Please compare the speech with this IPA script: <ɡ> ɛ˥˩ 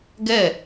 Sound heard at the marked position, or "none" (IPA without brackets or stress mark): ɡ